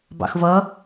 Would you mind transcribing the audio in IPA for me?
b ɑ̰ x v ʌ

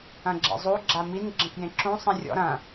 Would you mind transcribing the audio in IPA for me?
ɐ̃ ɡ͡ǁ ḛ zˤ u ɡ͡ǁ a m i n ɡ͡ǁ ə̃ k j ẽ ǁ ũ sˤ ĩ rʲ ɔ̰ ɾ ɐ̃

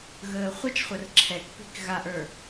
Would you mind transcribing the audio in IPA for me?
ɣ əː χʷ ə t͡ʃ χʷ ɐ r ǁʰ ɛ k p i̤ k ɣ a ʔ ə˞

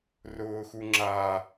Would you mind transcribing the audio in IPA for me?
r ʊː x u ŋ͡ǁ a

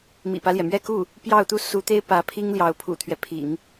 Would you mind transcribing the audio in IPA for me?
m ḭ˨˩ p ä˦ l j ɛ˩ m ɥ ɛ˥˧ k u˥˩ | p j ɑ˥˧ ʊ̯ t̪ u˥˩ s u˧˥ t̪ e˥ ɪ̯ p ä˧˥ pʰ i˥ ŋ l j ɑ˧˥ ʊ̯ pʰ ṵ˨˩ t̪ʰ ɥ ɛ˦ pʰ ḭ˨˩˦ ŋ

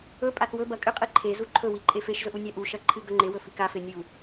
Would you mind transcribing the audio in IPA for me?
ɵ pʼ a θ w ɵ b ɐ kʼ ɨ qʼ i ǃʰ e z u ǃʰ ɵ w i ǃʼ e f e ʃ z ɵ ʔ u nʲ a ʔ u ʃ ɐ ǃʰ ɨ ɡ ɵ ŋ͡ǃ e w ɵ f i k a f e nʲ u

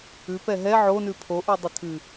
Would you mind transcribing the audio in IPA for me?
ʉ p ɛ ɦ ɛ ʕ o n ʉ pʰ o ʔ ʉ dˤ ɨ tʰ ɨ

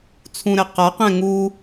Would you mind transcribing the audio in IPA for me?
t͡sʰ ũ ɾ ɛ q a q ɛ̃ ŋ u

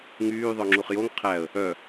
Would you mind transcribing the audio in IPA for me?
ŋ yː ðˤ œ ŋ͡ǁ u χ j o ŋ qʰ æ ə̯ | œ

